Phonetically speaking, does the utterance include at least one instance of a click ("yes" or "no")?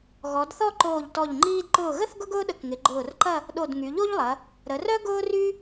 yes